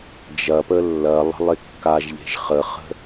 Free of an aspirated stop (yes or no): yes